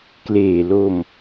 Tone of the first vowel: low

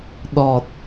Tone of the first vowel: low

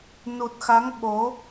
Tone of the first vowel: low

